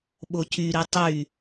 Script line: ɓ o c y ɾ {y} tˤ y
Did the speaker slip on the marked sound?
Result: yes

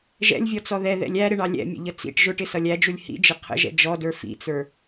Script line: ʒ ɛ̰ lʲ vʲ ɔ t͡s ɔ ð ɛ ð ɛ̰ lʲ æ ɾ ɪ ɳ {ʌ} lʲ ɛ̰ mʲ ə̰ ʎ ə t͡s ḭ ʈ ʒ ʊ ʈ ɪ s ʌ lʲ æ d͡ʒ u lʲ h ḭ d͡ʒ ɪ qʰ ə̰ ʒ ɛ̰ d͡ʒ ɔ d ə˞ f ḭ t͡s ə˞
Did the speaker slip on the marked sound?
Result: yes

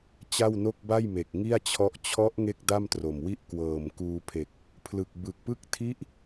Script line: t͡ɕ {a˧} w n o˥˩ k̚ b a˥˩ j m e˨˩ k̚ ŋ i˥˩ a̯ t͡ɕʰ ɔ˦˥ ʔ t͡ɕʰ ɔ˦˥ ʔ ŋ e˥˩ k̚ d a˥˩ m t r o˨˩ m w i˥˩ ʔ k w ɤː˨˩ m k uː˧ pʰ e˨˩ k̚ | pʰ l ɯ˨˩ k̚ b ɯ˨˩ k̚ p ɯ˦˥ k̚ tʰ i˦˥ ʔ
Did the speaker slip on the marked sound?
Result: yes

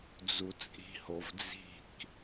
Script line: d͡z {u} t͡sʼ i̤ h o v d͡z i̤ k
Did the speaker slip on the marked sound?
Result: no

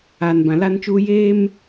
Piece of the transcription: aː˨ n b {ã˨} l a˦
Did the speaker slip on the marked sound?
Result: no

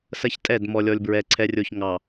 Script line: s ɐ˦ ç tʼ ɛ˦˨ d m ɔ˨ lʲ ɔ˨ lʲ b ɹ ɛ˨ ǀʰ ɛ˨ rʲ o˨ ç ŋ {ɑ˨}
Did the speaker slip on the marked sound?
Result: no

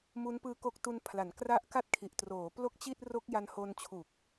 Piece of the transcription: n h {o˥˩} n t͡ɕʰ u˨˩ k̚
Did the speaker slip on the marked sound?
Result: yes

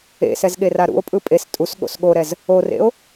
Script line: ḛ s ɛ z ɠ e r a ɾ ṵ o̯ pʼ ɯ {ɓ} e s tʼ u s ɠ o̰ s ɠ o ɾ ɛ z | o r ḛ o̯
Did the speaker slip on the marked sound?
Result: yes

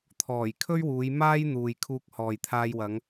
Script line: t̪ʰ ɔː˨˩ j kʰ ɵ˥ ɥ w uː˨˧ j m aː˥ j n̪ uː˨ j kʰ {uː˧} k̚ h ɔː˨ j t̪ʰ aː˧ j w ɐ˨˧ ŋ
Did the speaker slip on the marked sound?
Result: no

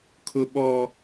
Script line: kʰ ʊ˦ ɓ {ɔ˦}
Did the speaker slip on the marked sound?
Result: no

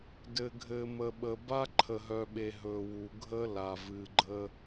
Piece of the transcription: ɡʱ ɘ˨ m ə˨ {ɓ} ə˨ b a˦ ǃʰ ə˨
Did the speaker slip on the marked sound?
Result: no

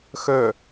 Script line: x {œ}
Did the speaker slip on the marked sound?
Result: no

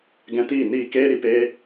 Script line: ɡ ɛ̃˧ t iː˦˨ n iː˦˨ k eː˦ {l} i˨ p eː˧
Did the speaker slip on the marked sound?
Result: yes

